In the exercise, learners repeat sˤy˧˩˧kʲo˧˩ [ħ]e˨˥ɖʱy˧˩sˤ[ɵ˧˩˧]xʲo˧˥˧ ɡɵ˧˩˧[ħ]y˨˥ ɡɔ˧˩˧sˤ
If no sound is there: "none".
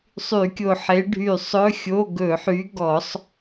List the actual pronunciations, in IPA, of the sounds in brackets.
ħ, ɵ˧˥˧, ħ

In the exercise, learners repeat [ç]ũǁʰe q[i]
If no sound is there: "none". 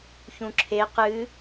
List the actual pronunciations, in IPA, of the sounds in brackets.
ç, ɨ

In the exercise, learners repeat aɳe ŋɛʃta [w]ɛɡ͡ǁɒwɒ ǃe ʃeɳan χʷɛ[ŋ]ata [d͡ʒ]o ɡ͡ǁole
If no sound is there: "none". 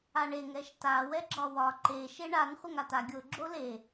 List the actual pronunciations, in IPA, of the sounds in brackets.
w, ŋ, ɡʲ

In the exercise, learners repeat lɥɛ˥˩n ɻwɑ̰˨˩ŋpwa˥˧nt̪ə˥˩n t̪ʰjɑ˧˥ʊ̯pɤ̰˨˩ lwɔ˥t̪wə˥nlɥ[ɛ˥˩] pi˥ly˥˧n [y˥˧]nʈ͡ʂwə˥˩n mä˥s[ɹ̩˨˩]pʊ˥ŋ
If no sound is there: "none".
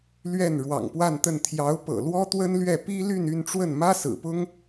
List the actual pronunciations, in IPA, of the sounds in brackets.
ɛ˥˩, y˥˧, ɹ̩˨˩

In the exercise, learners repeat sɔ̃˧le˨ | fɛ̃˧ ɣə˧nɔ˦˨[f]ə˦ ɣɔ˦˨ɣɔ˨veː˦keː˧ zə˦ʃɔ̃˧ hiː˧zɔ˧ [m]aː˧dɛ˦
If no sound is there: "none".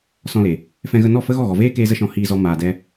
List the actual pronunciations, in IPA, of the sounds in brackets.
f, m

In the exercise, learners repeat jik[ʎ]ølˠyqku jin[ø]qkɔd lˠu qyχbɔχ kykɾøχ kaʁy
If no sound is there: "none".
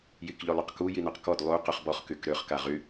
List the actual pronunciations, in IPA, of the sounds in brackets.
ʎ, ø

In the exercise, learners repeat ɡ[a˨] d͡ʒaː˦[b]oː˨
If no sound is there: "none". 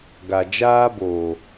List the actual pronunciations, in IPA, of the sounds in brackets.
a˨, b

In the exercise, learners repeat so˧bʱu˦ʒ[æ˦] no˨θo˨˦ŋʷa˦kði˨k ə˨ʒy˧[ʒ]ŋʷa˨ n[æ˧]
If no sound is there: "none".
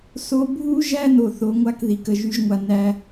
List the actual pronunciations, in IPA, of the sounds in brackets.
æ˦, ʒ, æ˧

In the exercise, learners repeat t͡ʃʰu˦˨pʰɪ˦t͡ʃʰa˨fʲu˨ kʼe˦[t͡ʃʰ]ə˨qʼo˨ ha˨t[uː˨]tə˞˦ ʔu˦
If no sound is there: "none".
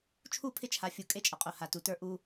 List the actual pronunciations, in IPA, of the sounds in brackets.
t͡ʃʼ, u˨

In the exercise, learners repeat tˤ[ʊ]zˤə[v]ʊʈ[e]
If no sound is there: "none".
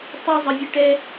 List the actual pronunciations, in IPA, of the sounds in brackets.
ʊ, vʲ, ɛ

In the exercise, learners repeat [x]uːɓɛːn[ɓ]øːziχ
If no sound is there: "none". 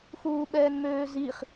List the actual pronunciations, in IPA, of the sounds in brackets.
x, m

